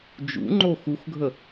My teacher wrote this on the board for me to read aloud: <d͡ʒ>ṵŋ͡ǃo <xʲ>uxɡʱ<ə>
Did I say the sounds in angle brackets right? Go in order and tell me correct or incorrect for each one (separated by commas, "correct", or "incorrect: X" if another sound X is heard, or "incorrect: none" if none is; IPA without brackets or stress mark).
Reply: correct, incorrect: x, correct